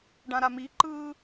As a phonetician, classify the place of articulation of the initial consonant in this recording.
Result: retroflex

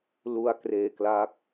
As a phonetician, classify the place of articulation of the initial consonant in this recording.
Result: alveolar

